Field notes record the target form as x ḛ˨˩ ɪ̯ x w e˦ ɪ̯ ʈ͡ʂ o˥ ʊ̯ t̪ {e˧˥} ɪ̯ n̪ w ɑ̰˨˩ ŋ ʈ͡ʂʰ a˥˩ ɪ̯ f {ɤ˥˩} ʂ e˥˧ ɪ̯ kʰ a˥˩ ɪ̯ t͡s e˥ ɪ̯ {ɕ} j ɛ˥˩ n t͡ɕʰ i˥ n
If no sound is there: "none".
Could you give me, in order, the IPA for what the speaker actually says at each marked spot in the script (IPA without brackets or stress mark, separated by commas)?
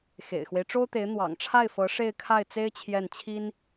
e˧˥, ɤ˧˥, t͡ɕʰ